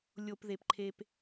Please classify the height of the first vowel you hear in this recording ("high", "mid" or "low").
mid